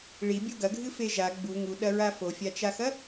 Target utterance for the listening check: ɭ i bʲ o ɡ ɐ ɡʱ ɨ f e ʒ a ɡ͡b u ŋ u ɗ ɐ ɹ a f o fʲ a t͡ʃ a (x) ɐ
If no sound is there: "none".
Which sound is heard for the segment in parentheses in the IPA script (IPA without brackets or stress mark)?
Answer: x